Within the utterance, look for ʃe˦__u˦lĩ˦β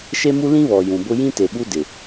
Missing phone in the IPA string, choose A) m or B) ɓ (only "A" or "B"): A